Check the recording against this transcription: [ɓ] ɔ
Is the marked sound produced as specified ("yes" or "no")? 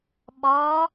yes